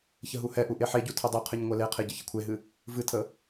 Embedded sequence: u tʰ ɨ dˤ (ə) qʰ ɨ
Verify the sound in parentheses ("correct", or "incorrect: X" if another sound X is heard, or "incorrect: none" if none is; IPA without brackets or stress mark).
incorrect: ɨ